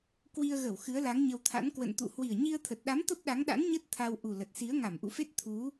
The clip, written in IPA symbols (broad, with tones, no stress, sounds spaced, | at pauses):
k w i˧ ə̯ ɣ ə˧˩ w x ɨ˨˦ ə̯ l a˨˦ ŋ ɲ ə˧ w t̪ʰ a̰˧˥ n k w ə̰˧˨ n t̪ ṵ˧˨ h w i˨˩ ə̯ ɲ i˧ ə̯ t̪ʰ ə˨˩ t̚ ɗ a˨˦ m t̪ ə˦˥ p̚ ɗ a˨˦ ŋ ɗ a̰˧˥ n ɲ ə˦˥ t̚ t̪ʰ a˧ w ʔ u˨˩ l ə˨˩ t̚ s i˨˦ ə̯ ŋ a˧˩ m ʔ ṵ˧˨ f e˦˥ t̚ t̪ʰ u˨˦